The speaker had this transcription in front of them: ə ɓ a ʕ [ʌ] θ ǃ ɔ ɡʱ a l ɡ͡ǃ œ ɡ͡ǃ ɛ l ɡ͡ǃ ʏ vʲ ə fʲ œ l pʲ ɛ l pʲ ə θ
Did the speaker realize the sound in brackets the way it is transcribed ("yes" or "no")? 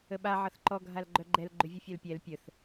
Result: yes